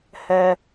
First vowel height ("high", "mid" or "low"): mid